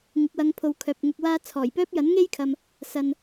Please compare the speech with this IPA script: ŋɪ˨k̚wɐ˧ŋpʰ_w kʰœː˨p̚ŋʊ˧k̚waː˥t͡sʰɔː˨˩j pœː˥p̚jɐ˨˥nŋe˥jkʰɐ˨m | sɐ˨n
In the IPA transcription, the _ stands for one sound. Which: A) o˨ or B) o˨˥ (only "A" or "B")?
A